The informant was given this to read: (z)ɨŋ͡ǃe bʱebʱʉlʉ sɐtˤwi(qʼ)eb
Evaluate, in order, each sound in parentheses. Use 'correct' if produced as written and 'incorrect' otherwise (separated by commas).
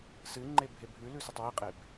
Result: incorrect, correct